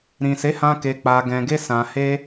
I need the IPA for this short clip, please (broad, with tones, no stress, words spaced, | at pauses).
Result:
ɾĩ˨se˨˦hã˧ ke˧k͡pa˧ɡɛ̃˧ɡe˦ sã˧he˦